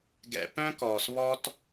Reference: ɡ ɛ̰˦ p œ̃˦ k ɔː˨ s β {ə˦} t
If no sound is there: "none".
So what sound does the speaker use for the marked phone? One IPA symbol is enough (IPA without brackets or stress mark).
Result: ɔ˦